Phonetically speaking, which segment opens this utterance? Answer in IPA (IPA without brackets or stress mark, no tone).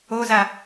o